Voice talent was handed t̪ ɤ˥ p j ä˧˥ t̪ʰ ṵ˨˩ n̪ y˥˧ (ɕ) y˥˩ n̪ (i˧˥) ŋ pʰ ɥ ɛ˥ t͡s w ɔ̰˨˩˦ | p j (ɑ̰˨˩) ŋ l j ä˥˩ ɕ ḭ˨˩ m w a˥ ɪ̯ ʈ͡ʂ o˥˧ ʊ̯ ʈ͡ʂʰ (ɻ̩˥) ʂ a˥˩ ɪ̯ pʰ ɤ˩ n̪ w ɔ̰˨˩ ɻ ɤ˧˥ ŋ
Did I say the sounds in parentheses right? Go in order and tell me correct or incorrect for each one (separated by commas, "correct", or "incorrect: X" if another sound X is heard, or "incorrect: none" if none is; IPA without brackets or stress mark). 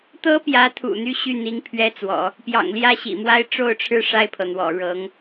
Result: correct, correct, correct, incorrect: ɻ̩˥˧